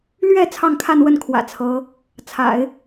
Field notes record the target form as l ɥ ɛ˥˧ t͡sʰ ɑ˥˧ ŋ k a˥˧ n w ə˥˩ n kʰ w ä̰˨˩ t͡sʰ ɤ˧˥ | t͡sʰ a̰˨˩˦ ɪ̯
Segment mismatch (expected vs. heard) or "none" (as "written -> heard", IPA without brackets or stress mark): k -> kʰ